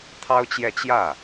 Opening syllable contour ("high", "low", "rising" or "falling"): high